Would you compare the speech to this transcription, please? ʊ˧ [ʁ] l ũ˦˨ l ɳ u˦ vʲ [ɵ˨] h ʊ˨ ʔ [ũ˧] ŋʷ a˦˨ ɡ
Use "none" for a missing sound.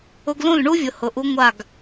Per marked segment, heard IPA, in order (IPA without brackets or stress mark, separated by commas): ɡ, ʊ˨, u˧